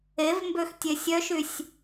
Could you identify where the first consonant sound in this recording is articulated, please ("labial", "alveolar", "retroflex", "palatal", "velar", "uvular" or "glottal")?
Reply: labial